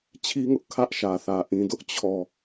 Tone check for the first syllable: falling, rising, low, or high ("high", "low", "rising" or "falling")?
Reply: high